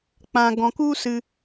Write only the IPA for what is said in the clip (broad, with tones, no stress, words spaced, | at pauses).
k͡pã˧ɡɔ̃˧k u˦sɨ˧